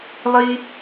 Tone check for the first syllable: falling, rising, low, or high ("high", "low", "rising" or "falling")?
high